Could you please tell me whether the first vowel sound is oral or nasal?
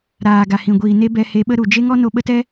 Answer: oral